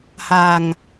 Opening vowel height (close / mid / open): open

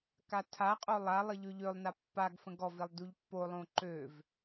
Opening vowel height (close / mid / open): open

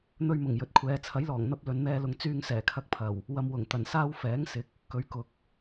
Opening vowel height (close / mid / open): mid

